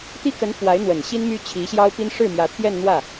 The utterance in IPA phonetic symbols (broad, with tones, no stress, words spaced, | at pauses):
t̪i˥kə˧˥n fwa˧˥ɪ̯n̪wə˨˩nɕi˥n my˥ t͡ɕʰi˧˥ɕjɑ˥ʊ̯pi˥n ʂɻ̩˥˩mjä˧˥t̪ʰjɛ˥˧n n̪wä˥˩